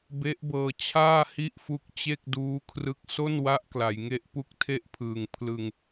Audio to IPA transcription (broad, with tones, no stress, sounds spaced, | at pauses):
b e˦˥ ʔ b ɤː˧ t͡ɕʰ aː˥˩ h i˥˩ ʔ f u˦˥ k̚ t͡ɕ e˥˩ k̚ d uː˦˥ kʰ r ɯ˦˥ k̚ s o˥˩ n w a˦˥ ʔ k l a˩˦ j ŋ e˥˩ ʔ p u˦˥ k̚ tʰ e˦˥ ʔ pʰ ɯː˨˩ ŋ pʰ l ɯ˧ ŋ